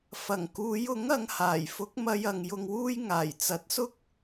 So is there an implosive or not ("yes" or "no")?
no